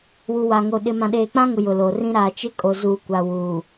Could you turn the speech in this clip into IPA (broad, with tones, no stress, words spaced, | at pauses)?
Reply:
wu˨wa˨ŋo˨ ɗɪ˨ mã˨ɗeː˨k͡pã˦ŋʊ˨ jʊ˨lo˨rĩ˦ ɾaː˨t͡ʃɪ˦ kʼo˨zuː˨ kʷa˨wuː˨